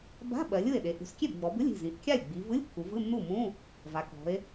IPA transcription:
ba̤˧˥˧ ɓɜ˩˧lʲɯ˥˩e̯ɗe˩˧ ʔṳ˩˧skʲe˥˩bɡ͡bɔ˩˧bɯ˧˥˧lʲ i̤˥˩zĩ˩˧ʔ kʲa˥˩lʲɡ͡bi˩˧vɯ˧˥˧lʲ kːu˩˧vɯ˧˥˧nːu˥˩ mũ˧˥˧ | va˩˧kɔ̤˩˧e̯

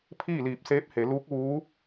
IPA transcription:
pʰiː˥˨liː˧˩p̚seː˧˥p̚he˩˧ luː˧˥k̚ʋuː˧˥

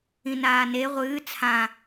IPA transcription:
ĩnaːne ʁʷɨː t͡sʰã

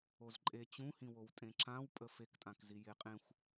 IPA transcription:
ozǃʼe t͡ɕũhĩwow tʼẽǁãwpʼə fektʼãkzi jeqʼẽxʷ

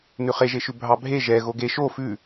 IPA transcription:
nʉχeʒeʃʉ bʱɑbʱe ʒɛ ɣoɡe ʃo fʉ

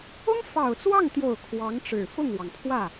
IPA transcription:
ʊ˥ŋ fɑ˨˩ʊ̯t͡swɑ˥˩ŋt̪jo˨˩ʊ̯ kʰwɑ˧˥ŋʈ͡ʂɻ̩˨˩ fʊ˥˩ŋwɑ˩ŋpʰwä˥˩

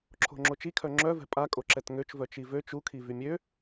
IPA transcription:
ǁʰo̤ŋ͡ǁot͡ʃi kʰœŋ͡ǁœvɛ̤ pʼa kʼoǁɛtŋøt͡ʃ vœt͡ʃivøt͡ʃ ukʰi vymʲø

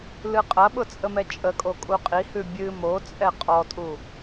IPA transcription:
lɨqʼɐɓʊ t͡sʼəmɛt͡ʃʼəkʼo kʼuqʼihʉ bʲɨ mo t͡sʼɛqʼɔtʼu

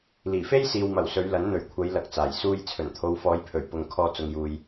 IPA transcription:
liː˨˩fe˥jsiː˨wmɐ˨˩w sɵ˨˧ɥlɐ˨˥n n̪ɵ˨˩ɥkʷʰɐ˨˧j lɐ˧k̚t͡saː˨˩j suː˧j t͡sʰɵ˨˩nt̪ʰo˨˧wfɔː˨˧jpʰɵ˨˩ɥ pʊ˨ŋ kʰɔː˧t͡sʊ˨ŋjuː˨j

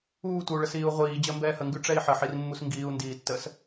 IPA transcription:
uːtʷəu̯ɭəs iːu̯ʁʷiː d͡ʑəːmbɛːhəŋɡʉ ʈ͡ʂɛi̯ħəħirmːus ŋɡiːu̯ndiːtːəːs

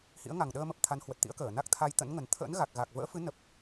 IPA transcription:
hḭ˧˥ə̯ŋa˨˩ŋɗəː˧mə˨˩p̚ t̪ʰa˨˦nhwə˨˩t̚t̪ḭ˧˥ə̯kəː˧˩ na˦˥k̚t̪ʰa˧jt̪ə̰˧˥nŋə˨˩n t̪ʰə̰ː˧˥nɣa˨˩k̚ ɣa˨˩k̚ və̰ː˧˥fɨ˨˦ nə˨˩p̚

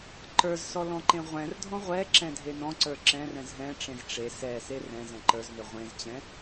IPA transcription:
ǃə˞zsɔ lɔ̃ǃẽʁʷɛ̃rdʱɔ̃ ʁʷɛ ǁɛ̃dʱenɔ̃ǀə˞ ǁɛ̃rɛ̃z ɦɛ̃ʈ͡ʂẽz ʈ͡ʂe sɛ serɛ̃zɛ̃ ǃə˞znø ʁʷẽzt͡ɕɛ̃

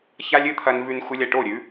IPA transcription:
ça˦lʲɨ˦ t̪ʰɐ˧nvʉ˧n xʷɨ˧lʲɐ˨ʈo˦˨ ɾʲʉ˨˦

